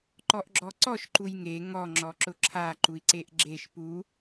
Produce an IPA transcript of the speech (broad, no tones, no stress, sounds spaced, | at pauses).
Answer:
ǃ ɔ ʔ ɡ͡ǁ ɔ ǀ ɔ ʃ ǃ u j ŋ e ŋ ɔ ŋ͡ǁ ɔ ǁ ʊ ǁʰ a ǃ u i̯ ǀ e ʔ ɡ͡ǁ e ʃ p u